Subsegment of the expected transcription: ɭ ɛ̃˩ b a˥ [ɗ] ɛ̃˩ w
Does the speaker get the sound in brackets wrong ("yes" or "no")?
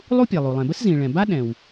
no